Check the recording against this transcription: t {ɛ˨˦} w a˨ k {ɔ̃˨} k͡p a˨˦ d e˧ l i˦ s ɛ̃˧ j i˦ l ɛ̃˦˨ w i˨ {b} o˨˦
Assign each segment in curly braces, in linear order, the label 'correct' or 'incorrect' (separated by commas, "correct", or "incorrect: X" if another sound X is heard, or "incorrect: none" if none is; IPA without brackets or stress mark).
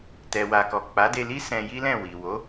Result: incorrect: ɛ˨, incorrect: ɔ˨, incorrect: w